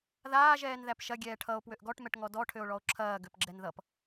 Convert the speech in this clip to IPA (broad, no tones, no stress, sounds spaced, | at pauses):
ð aː ʒ ɛː n ð æ p ʃ ɐ ɡʲ ɛː ʈʰ ʌ o̯ p w ø ʔ ɡ ɔ ʈ m ɛ ʈ ŋ ɔ d ɔ ʈʰ ø o̯ ɭ ɔ o̯ ǁʰ ɐː ɡ ø p ɡ͡ǁ ɛ n ð ʌ p